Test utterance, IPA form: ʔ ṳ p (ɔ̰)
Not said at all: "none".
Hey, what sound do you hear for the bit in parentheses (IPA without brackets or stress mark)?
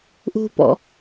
ɔ̰